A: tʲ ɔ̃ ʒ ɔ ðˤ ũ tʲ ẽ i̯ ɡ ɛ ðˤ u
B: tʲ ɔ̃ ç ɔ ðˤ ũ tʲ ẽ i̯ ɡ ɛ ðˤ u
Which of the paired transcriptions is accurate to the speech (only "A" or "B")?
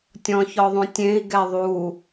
B